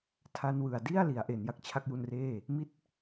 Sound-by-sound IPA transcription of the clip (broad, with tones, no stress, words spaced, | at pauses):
tʰa˧nwɯ˨˩a̯di˥˩a̯ li˩˦a̯ʔe˩˦n ja˨˩k̚t͡ɕʰa˦˥k̚ju˧nreː˥˩ | mi˦˥t̚